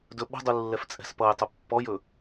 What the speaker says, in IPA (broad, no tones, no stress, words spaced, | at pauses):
dɵɓə̤dˤu lːɛft͡sʼɛ̤spʌjtˤɵ pːɔjɵ